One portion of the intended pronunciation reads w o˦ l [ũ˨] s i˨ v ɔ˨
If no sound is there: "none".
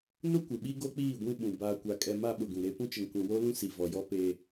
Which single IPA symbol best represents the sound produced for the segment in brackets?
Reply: ũ˦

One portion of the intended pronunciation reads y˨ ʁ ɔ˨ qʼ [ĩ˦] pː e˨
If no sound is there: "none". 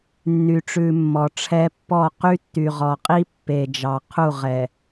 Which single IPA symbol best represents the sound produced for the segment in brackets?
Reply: i˦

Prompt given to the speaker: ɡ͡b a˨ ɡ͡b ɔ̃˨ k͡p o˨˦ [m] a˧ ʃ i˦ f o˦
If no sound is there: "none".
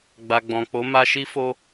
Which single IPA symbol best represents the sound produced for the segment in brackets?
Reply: m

